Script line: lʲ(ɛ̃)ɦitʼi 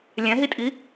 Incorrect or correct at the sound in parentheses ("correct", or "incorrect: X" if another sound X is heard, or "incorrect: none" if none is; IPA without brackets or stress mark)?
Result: correct